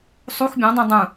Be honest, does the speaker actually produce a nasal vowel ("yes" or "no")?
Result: yes